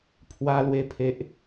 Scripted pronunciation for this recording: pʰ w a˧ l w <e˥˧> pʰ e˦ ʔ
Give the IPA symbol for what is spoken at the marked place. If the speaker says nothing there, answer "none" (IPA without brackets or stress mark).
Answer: e˧